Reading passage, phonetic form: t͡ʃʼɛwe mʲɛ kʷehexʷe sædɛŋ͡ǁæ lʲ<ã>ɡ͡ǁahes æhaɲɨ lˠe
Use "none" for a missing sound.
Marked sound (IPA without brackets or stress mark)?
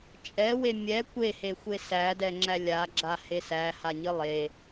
a